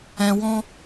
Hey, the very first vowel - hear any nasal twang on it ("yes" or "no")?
yes